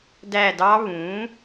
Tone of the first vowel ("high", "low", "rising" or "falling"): falling